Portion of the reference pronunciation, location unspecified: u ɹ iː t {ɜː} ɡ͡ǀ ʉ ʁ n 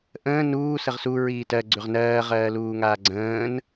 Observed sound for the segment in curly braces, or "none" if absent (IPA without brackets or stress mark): ɜ